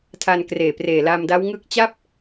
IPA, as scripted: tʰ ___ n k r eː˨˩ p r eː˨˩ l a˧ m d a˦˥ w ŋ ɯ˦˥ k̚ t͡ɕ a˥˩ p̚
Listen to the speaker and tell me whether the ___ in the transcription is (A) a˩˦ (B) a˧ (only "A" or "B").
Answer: B